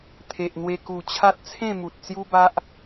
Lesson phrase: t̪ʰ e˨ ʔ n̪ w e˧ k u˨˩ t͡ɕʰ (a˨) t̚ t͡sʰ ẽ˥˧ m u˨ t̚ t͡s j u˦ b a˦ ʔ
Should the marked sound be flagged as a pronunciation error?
yes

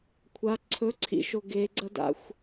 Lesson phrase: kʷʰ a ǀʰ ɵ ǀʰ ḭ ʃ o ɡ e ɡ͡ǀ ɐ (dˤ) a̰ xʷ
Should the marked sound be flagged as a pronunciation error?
yes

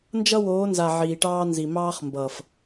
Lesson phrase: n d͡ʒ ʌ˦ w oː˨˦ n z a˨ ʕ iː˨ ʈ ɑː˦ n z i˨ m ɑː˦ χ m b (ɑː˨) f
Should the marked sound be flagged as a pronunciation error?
yes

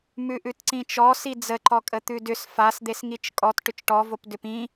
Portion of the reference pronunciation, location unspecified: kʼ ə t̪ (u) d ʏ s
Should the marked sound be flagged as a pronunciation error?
yes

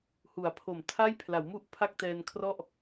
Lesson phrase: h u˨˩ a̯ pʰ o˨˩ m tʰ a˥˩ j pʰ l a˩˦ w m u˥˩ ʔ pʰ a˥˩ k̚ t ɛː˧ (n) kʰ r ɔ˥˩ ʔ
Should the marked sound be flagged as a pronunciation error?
no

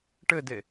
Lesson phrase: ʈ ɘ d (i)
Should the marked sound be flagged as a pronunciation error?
yes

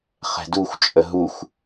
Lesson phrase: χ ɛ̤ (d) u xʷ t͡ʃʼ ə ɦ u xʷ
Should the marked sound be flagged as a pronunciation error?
no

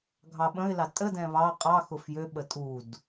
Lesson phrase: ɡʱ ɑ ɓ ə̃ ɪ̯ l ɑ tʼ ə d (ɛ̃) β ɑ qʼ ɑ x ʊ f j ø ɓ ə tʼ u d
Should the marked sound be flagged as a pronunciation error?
no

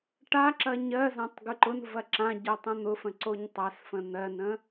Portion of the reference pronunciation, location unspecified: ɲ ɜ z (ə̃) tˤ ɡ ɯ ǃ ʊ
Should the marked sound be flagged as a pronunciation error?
yes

